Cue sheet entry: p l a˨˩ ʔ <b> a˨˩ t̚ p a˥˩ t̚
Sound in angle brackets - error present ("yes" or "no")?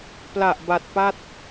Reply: no